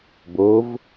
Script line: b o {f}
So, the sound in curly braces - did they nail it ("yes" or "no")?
no